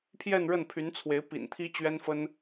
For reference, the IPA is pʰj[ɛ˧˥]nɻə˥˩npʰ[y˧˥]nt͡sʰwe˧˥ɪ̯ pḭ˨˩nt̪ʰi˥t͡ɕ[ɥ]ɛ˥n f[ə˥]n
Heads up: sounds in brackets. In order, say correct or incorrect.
incorrect: ɛ˥˧, correct, correct, correct

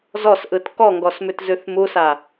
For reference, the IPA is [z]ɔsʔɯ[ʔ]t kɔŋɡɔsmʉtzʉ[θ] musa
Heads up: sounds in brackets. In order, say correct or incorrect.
correct, incorrect: none, correct

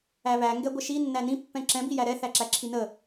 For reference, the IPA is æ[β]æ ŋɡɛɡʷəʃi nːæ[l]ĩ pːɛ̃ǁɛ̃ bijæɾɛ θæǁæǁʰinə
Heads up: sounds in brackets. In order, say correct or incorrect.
correct, incorrect: n

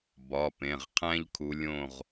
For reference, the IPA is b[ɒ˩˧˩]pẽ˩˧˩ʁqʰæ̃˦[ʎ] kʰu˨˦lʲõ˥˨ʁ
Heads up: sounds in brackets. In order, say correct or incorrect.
correct, correct

